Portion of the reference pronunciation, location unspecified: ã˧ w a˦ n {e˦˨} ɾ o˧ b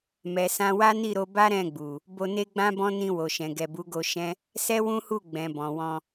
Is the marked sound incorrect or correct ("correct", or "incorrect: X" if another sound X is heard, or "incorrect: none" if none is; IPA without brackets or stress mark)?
incorrect: i˦˨